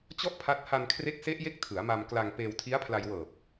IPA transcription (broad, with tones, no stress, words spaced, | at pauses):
t͡ɕɔ˥˩ʔpʰa˦˥t̚ ha˧nkʰre˦˥k̚se˦˥ʔje˦˥k̚ tʰɯ˩˦a̯ma˧mkla˧ŋ peː˧wtʰi˦˥a̯pʰla˧j wɤː˨˩p̚